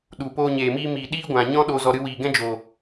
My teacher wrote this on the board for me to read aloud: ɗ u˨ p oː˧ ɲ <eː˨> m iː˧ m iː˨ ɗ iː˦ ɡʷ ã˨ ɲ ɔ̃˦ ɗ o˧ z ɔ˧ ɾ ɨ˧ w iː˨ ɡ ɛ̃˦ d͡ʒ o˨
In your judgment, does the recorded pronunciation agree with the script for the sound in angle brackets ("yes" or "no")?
yes